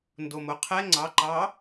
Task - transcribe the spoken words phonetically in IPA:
ndomoqʰɛ ŋ͡ǀɑǃɑ

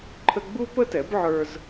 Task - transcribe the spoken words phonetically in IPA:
ǃʰə˥ ɡ͡bu˥pə˥tɛ˩˥bʕə˞˧z

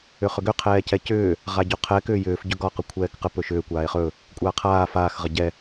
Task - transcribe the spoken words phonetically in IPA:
ʏχʏɡʏ qʰɛːcɛcʏː | ʁaɟoqʰɛ kʏːjʏːf ɟɵɡɒ qəkʷʰɛːkqə pɵʃʏː kʷaːe̯χɵ | kʷʼaːqʰaː faːx ʁəɟɛ

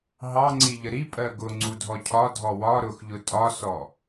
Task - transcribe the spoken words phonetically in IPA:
ɦɑŋ͡ǀiʎə ɾipʼɜ ɡʊŋ͡ǀudʱɔ cʰɒdʱɔ wɒ ɾʊxʎʊ tʼɒsɔ

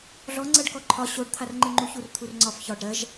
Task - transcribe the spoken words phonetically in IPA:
ɮɔŋ͡ǀɜɖ kɔǃʰɒ ɕoɖt̪ʰar ŋ͡ǃɨŋ͡ǃuçur t̪ʰurŋ͡ǀɒf çɒɖ ɾɜʒ

